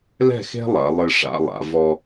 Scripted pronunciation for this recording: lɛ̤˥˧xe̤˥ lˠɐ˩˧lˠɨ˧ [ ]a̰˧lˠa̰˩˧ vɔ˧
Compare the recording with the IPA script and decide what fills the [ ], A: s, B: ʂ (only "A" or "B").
B